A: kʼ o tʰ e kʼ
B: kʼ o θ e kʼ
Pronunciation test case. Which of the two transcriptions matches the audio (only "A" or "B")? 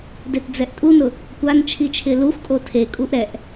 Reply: A